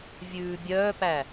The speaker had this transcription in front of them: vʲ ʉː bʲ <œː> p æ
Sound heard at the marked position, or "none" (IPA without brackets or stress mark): œː